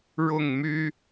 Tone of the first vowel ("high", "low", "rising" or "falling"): falling